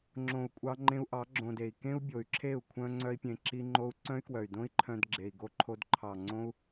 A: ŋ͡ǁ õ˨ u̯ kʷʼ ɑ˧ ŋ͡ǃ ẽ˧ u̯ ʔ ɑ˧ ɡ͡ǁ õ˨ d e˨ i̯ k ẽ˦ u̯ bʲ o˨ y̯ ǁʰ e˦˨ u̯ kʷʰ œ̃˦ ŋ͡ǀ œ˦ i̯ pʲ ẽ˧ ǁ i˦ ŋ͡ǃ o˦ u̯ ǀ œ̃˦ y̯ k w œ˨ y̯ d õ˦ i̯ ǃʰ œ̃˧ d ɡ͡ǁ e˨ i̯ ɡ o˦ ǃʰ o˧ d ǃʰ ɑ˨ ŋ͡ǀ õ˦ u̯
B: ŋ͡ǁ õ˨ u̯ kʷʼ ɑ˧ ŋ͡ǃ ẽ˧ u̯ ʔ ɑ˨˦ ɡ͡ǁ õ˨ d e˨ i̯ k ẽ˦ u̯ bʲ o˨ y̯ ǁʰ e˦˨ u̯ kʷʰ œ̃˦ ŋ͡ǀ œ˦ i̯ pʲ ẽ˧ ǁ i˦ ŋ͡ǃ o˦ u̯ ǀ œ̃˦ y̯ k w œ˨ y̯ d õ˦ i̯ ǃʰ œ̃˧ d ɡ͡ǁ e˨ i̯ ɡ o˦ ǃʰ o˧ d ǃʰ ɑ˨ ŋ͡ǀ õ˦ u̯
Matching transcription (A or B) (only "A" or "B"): B